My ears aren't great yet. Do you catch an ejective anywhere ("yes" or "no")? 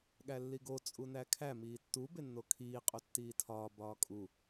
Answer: yes